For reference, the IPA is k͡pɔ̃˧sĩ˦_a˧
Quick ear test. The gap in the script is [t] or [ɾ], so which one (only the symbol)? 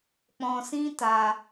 t